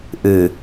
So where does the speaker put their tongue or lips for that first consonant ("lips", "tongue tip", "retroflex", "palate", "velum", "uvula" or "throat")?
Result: throat